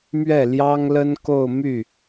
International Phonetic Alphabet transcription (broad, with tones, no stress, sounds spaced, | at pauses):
m ɥ ɛ˥˩ l j ɑ˥ ŋ l ə˥ n k o˥˧ ʊ̯ m y˥˩